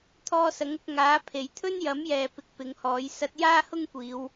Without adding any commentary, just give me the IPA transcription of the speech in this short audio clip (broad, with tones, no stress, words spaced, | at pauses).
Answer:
t̪ʰɔː˧sɐ˨˥ŋʊ˧k̚ ŋaː˨˥pʰe˨j t̪ʰɵ˥njɐ˨˥mjɛː˨ pɪ˨k̚ pɪ˨˧ŋhɔː˨˥j sɐ˧t̚jaː˥hʊ˥ŋkʷiː˨˧w